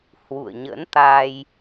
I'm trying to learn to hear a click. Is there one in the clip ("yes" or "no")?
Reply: no